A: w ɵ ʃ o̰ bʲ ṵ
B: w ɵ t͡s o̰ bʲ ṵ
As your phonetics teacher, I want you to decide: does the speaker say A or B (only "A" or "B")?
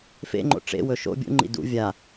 A